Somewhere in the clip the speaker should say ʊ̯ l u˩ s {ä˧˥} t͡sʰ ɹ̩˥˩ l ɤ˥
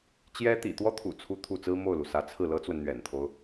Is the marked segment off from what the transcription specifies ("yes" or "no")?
no